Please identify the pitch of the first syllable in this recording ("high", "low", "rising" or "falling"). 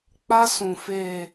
high